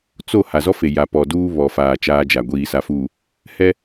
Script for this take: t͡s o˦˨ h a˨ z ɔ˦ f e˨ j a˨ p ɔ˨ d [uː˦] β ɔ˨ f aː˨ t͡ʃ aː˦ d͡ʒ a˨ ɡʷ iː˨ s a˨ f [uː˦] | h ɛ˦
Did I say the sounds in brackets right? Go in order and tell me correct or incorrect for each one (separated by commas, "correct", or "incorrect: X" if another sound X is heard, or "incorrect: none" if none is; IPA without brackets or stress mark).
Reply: correct, incorrect: uː˨